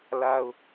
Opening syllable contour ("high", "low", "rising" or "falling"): high